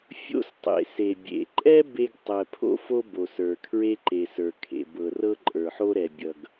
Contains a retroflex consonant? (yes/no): no